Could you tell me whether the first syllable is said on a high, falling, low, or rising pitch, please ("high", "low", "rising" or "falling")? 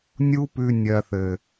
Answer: high